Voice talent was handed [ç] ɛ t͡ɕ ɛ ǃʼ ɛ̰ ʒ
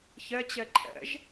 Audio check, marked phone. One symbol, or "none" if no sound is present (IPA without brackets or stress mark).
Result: ç